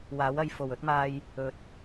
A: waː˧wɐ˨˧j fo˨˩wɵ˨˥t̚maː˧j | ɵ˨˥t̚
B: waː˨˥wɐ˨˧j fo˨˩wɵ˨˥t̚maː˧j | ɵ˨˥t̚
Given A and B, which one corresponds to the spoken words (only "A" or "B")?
B